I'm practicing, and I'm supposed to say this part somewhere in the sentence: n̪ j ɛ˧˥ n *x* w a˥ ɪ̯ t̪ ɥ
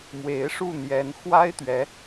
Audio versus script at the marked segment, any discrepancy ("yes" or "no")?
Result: no